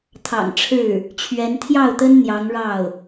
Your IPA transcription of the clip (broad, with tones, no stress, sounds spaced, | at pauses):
t̪ʰ ɑ̰˨˩ ŋ ʈ͡ʂʰ ɻ̩˥˩ | t͡ɕʰ ɥ ɛ˧˥ n t̪ʰ j ɑ˥˩ ʊ̯ t̪ ə˥ n n̪ j ɑ˧˥ ŋ ɻ ɑ˥˩ ʊ̯